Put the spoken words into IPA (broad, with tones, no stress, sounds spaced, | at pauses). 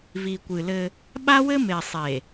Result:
v i˨ kʷ ɨ˨ l ɘ˦ | ɓ a˦ w ɘ˦ m e˨ sˤ e˨